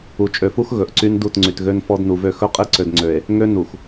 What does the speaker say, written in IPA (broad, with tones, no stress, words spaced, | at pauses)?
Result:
u˨t͡ʃʼø˨fu˦x ɣɵ˨ʔǀy˦n du˦˨tŋ͡ǀy˨tɣø˦n fɔ˦dnu˨vø˦ xɵ˦qʼe˦ǀø˨d ŋ͡ǀø˨e̯ | ŋø˦ nu˨x